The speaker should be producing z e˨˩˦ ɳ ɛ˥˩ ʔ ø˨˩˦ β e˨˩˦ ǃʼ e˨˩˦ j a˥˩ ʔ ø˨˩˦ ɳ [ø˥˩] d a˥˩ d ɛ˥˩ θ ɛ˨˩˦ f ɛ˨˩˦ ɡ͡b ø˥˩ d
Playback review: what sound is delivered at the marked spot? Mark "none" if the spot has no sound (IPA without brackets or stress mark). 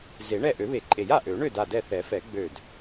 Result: ø˥˩